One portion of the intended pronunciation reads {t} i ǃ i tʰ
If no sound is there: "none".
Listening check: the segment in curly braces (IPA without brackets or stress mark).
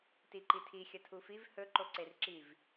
t